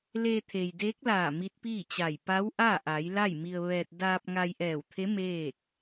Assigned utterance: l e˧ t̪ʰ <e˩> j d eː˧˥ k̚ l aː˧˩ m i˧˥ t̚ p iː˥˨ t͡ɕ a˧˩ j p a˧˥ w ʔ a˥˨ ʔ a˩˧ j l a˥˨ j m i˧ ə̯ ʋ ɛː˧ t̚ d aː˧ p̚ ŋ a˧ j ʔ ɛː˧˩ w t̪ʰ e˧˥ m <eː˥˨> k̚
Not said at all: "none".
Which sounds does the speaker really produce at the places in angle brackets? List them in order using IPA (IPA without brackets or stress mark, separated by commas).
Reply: e˩, eː˥˨